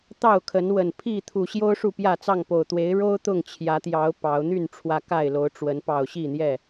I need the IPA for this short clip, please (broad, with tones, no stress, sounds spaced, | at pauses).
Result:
t̪ ɑ˥˨ ʊ̯ kʰ ə˨˦ n w ə˨˩ n pʰ i˥˨ t̪ʰ u˨˩ ɕ j o˦ ʊ̯ ʂ u˥˨ p j ä˥˨ t͡s ɑ˥˨ ŋ p o˨˩ ʊ̯ t̪ w e˨˦ ɪ̯ ɻ o˦ ʊ̯ t̪ ʊ˥˨ ŋ t͡ɕʰ j ä˨˦ t̪ j ɑ˨˦ ʊ̯ p ɑ˨˦ ʊ̯ n̪ y˥˨ n ʈ͡ʂʰ w ä˨˦ k a˥˨ ɪ̯ l o˨˦ ʊ̯ ʈ͡ʂ w ə˨˦ n p ɑ˨˩ ʊ̯ ɕ i˥˨ n̪ j ɛ˥˨